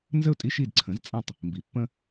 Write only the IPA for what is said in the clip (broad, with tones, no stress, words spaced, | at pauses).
nzə˥˩ʊ̯tʼi˧ ʃi˥˩dǀʰə̃˩˥zt͡sʼã˥˩tˤ | mbi˩ pːə̃˧